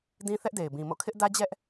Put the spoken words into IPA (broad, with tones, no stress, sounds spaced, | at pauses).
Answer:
d ĩ˦ θ ɛ˦ ʔ d e˨ ɪ̯ b ĩ˨ m o̰˦˨ kʰ ɪ˦ ʔ d ä˦ d͡ʑ ɛ˦ ʔ